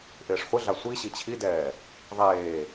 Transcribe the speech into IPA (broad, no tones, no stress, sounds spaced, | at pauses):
ʔ ɪː ʂ χʷ ɪ ɮ a sʷ i ɕ i t͡ɕʰ i d ɛː | ðˤ eː